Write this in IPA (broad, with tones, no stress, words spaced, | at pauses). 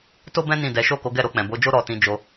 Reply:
to˦bɛ̃˦ nĩ˦˨dɛ˨˦ ʃo˦˨ko˨˦ɡɛ˦˨ ɾo˧k͡pɛ̃˨bo˨˦d͡ʒo˦ ɾɔ˧ tĩ˧ d͡ʒo˧